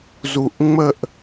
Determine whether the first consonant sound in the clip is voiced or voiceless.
voiced